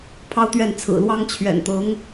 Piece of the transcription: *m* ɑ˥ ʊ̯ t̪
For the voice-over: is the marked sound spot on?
no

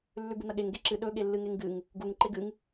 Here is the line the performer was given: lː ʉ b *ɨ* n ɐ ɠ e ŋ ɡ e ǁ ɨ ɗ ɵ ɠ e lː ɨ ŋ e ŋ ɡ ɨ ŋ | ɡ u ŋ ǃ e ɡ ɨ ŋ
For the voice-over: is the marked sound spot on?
yes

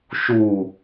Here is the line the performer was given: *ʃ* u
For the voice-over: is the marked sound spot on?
yes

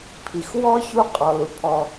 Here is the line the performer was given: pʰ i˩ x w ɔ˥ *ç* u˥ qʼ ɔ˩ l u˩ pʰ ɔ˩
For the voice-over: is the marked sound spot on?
yes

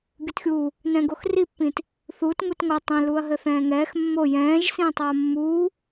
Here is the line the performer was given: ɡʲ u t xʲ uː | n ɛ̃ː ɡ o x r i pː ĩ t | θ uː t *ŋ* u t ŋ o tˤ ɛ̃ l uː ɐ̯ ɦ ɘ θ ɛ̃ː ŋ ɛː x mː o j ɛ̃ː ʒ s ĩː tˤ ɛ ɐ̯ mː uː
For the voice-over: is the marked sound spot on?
yes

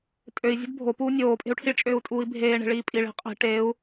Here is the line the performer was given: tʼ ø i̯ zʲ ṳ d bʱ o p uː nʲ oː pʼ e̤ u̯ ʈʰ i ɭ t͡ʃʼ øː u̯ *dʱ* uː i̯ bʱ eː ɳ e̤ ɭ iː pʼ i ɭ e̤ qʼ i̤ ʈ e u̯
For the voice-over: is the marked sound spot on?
no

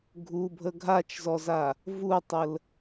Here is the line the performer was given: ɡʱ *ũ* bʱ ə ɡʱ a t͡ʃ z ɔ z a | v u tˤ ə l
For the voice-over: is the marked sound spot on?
no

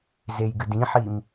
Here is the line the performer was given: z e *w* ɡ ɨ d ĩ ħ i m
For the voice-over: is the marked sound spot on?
no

